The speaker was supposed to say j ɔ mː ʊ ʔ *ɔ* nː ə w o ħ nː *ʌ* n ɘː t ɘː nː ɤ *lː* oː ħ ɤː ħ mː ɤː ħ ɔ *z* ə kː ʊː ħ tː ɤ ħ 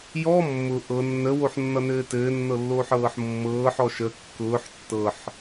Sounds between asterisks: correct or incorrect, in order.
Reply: incorrect: ɤ, correct, correct, incorrect: ʃ

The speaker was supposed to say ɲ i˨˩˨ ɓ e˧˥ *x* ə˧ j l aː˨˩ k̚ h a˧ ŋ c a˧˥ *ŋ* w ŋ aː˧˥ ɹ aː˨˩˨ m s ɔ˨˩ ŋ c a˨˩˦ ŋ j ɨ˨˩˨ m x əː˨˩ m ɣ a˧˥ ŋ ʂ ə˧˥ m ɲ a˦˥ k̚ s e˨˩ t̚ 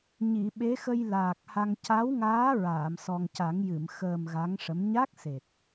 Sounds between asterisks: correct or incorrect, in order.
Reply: correct, incorrect: none

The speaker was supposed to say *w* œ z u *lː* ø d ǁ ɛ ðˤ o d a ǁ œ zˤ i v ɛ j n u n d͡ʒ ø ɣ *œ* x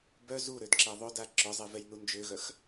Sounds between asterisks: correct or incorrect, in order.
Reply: incorrect: b, incorrect: ɾ, correct

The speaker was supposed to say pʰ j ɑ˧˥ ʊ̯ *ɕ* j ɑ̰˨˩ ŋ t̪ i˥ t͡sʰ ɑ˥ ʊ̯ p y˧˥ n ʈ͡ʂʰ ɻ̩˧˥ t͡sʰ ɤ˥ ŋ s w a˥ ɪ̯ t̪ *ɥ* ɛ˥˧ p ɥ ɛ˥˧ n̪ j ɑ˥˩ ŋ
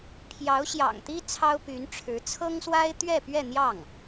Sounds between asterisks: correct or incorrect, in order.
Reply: correct, correct

